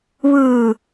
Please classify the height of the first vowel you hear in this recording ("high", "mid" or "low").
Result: high